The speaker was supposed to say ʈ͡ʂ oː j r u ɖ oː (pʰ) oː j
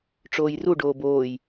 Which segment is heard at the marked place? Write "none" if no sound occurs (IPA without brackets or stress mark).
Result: b